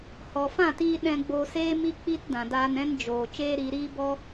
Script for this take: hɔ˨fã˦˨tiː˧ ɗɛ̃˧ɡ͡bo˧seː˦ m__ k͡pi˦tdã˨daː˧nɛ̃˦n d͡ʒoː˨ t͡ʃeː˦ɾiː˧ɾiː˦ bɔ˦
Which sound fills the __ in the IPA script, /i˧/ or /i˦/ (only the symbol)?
i˦